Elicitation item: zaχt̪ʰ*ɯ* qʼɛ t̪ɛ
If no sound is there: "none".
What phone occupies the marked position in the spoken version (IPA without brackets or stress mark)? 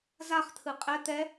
ɯ